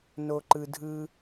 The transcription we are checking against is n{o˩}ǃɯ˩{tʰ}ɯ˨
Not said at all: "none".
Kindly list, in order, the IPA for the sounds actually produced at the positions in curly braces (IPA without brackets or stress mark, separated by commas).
o˩, dʱ